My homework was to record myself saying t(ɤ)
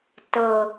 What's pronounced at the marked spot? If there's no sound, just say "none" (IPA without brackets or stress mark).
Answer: ɤ